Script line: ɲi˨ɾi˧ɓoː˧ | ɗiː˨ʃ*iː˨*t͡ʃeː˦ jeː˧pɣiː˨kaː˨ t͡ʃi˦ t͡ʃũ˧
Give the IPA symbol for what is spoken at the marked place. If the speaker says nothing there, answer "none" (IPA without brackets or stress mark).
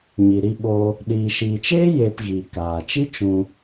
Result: iː˨